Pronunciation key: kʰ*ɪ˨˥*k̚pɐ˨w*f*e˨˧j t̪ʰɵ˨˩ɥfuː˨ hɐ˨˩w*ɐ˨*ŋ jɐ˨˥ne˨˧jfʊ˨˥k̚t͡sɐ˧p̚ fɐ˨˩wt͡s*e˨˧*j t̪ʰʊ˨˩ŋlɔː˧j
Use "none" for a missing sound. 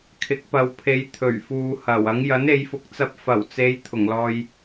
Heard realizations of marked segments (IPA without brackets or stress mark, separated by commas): ɪ˨˥, pʰ, ɐ˨˥, e˨˧